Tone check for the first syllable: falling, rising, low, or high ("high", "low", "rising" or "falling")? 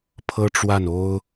high